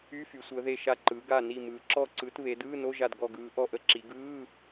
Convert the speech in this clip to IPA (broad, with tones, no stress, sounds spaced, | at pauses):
y˧˥˧ f y˩˧ sʷ əː˩˧ ð e˧˩ ʃ a˧˩ ǃ ɯː˩˧ ɡ a˧˩ n i˧˩ m ɯː˩˧ ǁ ɔ˧˩ ǀ ɯ˩˧ t β e˩˧ d ɯː˧˥˧ n o˧˥˧ ʒ a˧˩ d ɡ ɔ˧˩ ɡ ɯː˩˧ ʔ ɔ˧˩ ʔ ə˧˥˧ ǁ i˩˧ ɡ ɯː˧˥˧